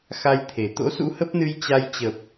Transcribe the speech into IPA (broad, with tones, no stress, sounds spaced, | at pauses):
x a˧ j t̪ʰ e˨˩ t̪ o̰˧˥ s ṵ˧˥ h ə˦˥ p̚ n ɨ˧ j t͡ɕ a˧ j t͡ɕ ə˨˩ p̚